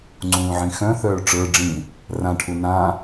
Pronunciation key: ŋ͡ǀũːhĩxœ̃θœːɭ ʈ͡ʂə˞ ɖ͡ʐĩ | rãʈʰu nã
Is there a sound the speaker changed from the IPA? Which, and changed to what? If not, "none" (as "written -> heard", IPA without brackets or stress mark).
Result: h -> ʕ